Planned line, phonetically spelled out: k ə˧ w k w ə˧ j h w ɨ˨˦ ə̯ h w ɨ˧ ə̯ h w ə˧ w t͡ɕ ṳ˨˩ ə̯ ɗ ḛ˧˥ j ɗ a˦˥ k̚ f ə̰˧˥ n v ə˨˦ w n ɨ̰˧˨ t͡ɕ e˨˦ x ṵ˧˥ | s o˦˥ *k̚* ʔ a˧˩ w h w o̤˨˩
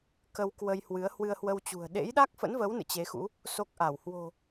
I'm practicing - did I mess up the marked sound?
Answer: no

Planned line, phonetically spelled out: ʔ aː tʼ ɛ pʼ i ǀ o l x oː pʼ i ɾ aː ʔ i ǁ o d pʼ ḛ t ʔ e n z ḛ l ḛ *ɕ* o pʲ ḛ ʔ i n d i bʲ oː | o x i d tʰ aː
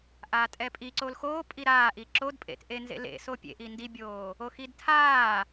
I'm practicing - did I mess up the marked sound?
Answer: yes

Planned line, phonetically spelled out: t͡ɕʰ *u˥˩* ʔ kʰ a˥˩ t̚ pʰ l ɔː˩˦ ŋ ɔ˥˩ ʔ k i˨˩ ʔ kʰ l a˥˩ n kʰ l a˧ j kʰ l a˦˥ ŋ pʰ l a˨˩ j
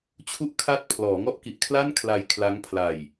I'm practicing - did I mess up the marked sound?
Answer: no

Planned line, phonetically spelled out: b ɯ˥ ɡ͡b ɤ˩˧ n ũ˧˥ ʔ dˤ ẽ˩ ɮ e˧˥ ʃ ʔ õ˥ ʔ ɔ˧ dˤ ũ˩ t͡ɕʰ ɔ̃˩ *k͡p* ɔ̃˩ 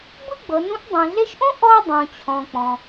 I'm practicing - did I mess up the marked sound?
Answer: no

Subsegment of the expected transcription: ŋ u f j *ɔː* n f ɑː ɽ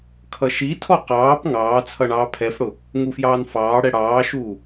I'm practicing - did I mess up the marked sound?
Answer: yes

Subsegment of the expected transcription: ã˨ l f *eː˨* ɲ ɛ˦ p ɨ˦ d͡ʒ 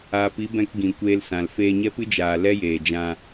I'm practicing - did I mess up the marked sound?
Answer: yes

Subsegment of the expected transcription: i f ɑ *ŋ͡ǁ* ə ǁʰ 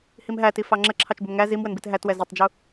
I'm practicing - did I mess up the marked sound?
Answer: no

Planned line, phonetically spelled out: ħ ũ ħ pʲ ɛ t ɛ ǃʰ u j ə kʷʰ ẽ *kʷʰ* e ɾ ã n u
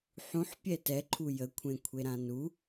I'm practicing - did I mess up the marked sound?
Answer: no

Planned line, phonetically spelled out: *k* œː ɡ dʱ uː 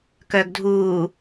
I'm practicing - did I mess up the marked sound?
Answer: no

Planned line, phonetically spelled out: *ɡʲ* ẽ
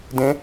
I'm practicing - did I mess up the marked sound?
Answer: yes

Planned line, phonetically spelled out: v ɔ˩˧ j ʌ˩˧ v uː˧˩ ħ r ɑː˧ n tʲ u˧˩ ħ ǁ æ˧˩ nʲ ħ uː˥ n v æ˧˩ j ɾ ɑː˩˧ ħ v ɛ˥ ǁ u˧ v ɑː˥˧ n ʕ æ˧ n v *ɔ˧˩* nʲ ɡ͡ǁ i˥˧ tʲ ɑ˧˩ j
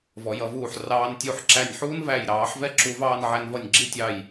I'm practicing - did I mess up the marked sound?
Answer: yes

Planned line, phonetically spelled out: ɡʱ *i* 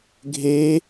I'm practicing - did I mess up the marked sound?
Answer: yes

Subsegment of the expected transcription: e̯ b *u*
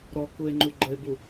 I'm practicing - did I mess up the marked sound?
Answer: no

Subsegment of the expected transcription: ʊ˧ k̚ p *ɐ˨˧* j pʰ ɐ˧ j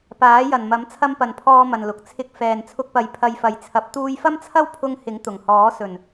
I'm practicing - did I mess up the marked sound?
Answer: no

